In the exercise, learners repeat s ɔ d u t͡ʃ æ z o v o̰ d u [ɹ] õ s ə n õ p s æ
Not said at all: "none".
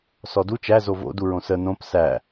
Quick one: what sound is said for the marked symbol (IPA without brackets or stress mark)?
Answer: ɹ